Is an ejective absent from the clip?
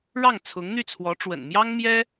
yes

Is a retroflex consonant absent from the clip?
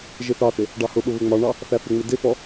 no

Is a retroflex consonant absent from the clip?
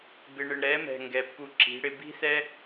no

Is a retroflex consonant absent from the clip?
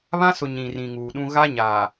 yes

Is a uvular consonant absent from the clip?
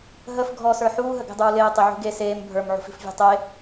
yes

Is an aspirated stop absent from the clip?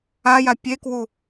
yes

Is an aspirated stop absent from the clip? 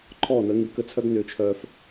no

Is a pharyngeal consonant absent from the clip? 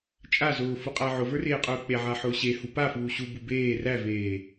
no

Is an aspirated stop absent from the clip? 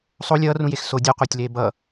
yes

